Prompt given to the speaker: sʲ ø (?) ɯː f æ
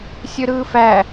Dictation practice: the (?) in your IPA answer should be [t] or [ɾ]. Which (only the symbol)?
ɾ